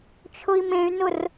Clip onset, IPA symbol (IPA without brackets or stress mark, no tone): t͡ʃʰ